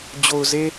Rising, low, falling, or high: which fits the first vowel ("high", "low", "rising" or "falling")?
low